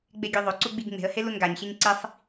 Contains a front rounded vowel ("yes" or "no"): yes